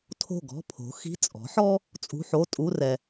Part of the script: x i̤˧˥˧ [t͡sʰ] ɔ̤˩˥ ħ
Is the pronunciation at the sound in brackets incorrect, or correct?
incorrect